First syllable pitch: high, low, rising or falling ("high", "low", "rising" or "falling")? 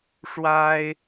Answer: high